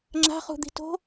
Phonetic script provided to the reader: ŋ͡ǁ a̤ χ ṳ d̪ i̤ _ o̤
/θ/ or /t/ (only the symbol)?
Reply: t